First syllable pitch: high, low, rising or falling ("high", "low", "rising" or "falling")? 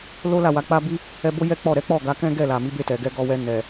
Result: high